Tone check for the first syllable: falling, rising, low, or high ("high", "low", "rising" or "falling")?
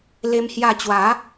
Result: high